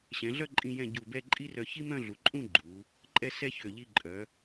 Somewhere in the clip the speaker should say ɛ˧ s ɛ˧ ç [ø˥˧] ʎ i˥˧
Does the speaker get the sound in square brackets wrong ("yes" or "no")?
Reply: yes